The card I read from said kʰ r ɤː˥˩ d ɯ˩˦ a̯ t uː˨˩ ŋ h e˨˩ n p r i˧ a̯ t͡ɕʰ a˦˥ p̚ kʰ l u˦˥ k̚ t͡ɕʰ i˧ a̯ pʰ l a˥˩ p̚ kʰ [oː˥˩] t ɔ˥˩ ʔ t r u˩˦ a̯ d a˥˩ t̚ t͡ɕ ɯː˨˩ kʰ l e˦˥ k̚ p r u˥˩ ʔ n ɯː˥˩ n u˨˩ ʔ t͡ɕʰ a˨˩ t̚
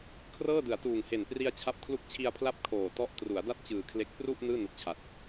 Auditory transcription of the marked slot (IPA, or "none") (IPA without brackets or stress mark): oː˨˩